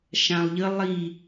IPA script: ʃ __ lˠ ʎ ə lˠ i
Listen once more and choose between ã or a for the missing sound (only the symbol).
ã